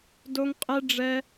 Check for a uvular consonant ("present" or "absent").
present